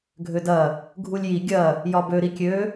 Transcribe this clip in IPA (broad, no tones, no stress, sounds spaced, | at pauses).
ɡʱ ø d ɐ | ɡʱ u lʲ j i ɡʲ ɐ | j ɒ b ø ɾ i kʲ ø